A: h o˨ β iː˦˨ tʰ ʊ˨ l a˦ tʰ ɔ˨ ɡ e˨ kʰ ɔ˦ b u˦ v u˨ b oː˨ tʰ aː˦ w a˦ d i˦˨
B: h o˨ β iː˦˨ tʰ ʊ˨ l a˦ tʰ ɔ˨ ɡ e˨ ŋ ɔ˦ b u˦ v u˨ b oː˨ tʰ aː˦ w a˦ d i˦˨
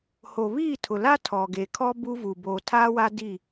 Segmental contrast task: A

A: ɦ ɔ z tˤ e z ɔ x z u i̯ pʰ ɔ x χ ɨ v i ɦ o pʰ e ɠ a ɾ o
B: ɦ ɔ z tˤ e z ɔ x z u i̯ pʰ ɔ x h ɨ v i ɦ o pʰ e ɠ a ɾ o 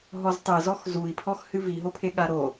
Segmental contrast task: B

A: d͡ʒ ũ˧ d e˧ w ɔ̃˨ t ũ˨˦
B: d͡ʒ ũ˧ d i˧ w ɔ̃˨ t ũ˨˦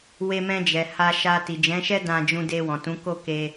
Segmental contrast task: A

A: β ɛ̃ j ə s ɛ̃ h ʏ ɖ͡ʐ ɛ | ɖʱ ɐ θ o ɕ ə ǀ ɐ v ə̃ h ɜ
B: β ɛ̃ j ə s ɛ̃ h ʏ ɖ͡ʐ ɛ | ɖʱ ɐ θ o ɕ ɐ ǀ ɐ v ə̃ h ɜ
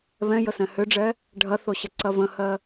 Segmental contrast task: A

